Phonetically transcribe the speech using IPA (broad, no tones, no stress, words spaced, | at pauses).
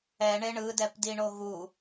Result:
ɛɳe ɳɯdɛpdiɳo ɣu